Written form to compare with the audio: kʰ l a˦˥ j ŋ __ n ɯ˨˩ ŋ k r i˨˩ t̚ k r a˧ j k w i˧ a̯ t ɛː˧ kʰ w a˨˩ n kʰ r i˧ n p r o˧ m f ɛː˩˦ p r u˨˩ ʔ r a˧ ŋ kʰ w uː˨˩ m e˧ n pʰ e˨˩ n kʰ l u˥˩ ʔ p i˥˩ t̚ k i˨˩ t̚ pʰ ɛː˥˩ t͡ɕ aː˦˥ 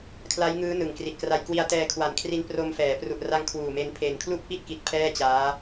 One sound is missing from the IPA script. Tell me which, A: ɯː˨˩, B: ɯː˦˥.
B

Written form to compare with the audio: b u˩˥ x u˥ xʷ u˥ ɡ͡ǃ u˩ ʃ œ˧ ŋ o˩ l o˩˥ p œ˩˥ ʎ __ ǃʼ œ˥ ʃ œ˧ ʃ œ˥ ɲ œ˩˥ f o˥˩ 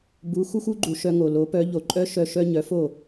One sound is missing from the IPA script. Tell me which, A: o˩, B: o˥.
A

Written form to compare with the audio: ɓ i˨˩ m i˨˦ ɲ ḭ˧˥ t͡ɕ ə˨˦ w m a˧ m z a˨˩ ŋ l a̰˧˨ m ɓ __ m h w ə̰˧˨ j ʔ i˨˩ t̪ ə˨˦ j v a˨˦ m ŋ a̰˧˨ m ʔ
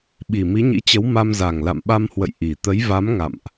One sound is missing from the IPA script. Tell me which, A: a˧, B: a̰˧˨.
A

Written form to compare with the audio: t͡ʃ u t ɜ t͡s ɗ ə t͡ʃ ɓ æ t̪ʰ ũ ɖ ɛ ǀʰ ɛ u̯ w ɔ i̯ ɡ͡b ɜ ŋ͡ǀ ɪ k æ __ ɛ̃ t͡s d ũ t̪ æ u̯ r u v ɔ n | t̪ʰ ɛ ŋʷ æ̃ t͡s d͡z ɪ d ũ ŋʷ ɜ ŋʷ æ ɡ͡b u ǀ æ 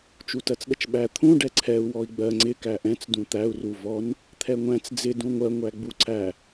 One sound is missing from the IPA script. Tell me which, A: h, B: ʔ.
B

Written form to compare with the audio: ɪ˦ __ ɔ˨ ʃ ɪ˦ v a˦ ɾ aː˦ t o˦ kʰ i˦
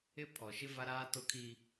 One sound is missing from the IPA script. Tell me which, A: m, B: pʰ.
B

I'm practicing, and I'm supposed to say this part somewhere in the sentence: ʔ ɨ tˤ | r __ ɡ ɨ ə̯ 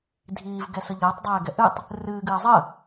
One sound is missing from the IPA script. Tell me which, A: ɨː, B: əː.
A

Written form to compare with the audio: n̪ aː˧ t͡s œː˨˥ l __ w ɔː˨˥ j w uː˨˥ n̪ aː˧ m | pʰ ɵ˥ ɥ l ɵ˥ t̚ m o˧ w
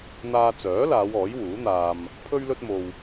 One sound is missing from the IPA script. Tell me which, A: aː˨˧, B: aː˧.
A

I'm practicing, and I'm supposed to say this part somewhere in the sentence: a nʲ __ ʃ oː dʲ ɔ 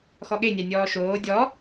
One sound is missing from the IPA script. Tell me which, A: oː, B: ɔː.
B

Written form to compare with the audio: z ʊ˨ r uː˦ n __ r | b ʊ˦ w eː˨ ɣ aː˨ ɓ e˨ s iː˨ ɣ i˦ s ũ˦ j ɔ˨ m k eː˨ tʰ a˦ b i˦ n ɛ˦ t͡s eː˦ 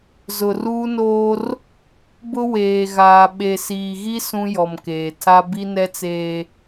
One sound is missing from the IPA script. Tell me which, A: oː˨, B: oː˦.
B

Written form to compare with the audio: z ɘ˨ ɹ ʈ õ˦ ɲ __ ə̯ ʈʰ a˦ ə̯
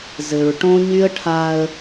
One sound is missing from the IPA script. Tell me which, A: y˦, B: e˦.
A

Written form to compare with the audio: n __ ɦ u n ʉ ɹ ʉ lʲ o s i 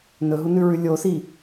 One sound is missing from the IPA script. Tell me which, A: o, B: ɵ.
B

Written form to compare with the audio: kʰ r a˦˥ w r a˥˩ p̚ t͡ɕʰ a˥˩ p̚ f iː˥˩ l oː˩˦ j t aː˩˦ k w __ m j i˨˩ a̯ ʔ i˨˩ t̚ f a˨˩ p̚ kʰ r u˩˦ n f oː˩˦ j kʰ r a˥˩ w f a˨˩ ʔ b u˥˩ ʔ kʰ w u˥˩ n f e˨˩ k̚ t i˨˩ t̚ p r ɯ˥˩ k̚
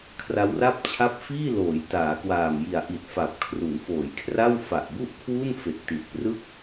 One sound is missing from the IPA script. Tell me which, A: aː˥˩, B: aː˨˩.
B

